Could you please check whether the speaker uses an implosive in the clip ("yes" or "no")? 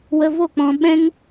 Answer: yes